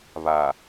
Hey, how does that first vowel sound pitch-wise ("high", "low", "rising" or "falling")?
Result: low